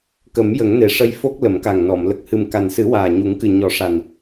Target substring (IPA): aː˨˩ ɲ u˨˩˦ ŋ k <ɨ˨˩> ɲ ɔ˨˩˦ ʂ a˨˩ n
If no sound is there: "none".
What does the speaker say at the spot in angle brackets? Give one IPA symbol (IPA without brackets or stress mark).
ɨ˨˩